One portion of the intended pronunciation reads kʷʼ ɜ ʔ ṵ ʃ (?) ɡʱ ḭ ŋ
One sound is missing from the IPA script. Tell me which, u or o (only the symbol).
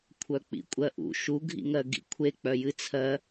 u